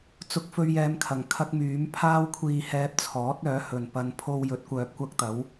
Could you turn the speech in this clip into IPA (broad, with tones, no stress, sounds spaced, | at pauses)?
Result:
t͡s ʊ˧ k̚ f ɵ˧ ɥ j ɛː˨˧ m kʰ ɐ˨˩ ŋ kʰ ɐ˥ k̚ m yː˨˥ m pʰ aː˥ w kʷʰ iː˧ h ɛː˧ p̚ t͡sʰ ɔː˨˥ t̚ œː˨˥ h ɵ˨ n p ɐ˧ n pʰ o˧ w j ɵ˨˥ t̚ kʷ œː˨ p̚ kʷ ɐ˥ k̚ t̪ ɐ˨˥ w